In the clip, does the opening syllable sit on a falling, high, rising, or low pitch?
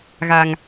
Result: low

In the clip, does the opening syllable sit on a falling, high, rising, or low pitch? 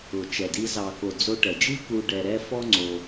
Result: low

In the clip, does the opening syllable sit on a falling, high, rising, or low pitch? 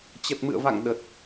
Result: low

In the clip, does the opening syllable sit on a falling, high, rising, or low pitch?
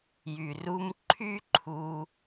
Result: low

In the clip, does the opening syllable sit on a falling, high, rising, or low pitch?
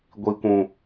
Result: low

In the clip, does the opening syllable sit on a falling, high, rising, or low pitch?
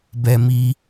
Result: high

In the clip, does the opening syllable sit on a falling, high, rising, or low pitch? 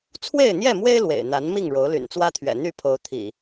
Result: falling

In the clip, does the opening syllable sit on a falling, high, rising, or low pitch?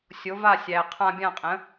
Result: rising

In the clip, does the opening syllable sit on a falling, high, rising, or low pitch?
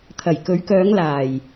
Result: low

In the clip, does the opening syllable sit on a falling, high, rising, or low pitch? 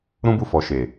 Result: high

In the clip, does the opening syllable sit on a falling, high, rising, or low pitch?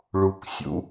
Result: low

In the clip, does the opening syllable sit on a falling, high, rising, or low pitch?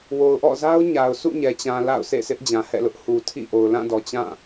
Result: low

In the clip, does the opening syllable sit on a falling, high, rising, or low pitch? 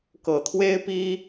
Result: low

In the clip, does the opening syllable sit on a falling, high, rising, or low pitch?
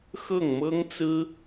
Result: falling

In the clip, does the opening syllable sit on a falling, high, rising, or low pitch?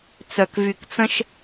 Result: low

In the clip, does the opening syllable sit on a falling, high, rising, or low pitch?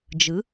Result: rising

